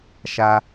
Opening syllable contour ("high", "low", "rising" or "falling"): high